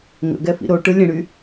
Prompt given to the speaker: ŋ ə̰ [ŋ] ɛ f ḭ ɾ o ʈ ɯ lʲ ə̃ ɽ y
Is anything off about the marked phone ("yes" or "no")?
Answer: yes